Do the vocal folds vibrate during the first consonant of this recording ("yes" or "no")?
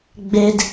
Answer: yes